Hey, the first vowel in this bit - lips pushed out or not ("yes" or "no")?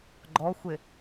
yes